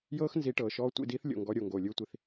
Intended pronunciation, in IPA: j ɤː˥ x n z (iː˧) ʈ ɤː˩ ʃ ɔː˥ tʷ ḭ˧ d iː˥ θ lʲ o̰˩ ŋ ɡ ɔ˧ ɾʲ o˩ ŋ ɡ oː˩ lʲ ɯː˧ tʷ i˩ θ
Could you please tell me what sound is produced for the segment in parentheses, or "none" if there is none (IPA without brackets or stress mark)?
i˧